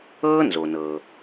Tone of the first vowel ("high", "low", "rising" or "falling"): high